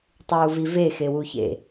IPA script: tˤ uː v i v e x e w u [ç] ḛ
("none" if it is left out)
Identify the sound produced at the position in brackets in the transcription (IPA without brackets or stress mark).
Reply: ç